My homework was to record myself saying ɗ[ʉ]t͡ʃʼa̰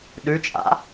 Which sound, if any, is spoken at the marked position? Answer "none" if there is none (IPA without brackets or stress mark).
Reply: ʉ